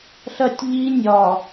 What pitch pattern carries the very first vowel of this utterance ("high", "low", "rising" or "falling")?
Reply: high